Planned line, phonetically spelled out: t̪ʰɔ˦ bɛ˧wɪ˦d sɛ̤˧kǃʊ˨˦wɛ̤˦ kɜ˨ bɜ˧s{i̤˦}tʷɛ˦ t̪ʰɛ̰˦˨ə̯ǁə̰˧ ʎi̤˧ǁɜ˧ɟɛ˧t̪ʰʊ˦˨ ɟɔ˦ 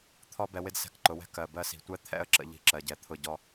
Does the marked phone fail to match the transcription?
yes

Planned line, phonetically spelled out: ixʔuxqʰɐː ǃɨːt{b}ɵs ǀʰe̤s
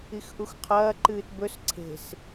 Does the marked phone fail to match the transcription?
no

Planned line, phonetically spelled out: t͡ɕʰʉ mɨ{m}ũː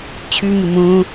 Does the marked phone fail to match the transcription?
no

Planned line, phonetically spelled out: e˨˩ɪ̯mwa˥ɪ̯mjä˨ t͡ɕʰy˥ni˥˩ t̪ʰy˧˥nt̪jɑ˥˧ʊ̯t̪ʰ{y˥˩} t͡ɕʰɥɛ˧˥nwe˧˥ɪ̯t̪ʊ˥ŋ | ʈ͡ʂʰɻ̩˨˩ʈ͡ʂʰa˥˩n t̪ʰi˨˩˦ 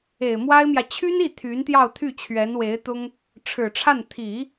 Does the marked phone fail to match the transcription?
no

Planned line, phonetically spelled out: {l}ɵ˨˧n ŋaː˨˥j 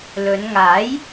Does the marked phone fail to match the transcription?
no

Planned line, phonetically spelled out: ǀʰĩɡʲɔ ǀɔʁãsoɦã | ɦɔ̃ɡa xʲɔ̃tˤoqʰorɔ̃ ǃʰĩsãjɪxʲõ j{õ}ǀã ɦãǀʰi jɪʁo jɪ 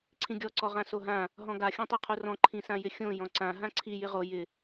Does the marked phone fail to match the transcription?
yes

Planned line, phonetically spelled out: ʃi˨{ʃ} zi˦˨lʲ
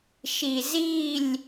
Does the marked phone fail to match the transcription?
yes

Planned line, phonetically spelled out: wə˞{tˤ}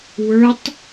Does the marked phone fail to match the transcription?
no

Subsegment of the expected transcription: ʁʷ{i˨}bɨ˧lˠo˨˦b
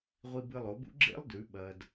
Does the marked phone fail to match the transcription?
yes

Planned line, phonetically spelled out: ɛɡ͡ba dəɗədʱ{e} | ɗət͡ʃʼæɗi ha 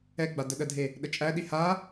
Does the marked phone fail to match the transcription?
no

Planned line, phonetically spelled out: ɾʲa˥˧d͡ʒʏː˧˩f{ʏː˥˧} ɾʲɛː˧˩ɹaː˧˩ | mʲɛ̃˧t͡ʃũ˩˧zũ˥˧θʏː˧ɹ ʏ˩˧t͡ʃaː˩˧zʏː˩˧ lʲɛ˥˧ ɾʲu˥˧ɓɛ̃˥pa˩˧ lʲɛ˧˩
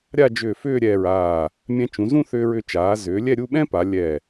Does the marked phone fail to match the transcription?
no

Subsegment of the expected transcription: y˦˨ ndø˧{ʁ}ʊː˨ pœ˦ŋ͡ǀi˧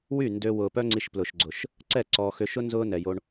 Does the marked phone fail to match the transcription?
yes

